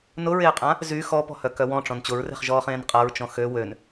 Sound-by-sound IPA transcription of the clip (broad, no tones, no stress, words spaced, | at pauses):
nʊɹeːqʼã | zy xɔpɔ̤hœkœ wɔ̃ʈ͡ʂɔ̃n t͡ɕʊɹre̤χʒɔːχẽːn qʼaɹt͡ʃɔ̃ xø wøn